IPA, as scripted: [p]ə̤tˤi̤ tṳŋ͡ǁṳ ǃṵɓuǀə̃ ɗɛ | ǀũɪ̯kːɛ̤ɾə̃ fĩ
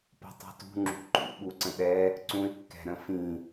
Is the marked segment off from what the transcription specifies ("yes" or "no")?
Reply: no